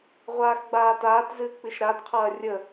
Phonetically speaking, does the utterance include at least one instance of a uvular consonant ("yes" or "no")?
yes